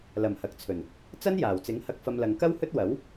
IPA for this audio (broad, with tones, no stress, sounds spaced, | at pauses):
l ɐ˨˩ m h ɐ˨ k̚ t͡sʰ ɵ˨˩ n | t͡s ɐ˥ n j aː˨˩ w t͡s ɪ˨˥ ŋ h ɐ˧ k̚ f ɐ˧ m l ɐ˨ ŋ k ɐ˥ w h ɵ˥ t̚ w ɐ˨˥ w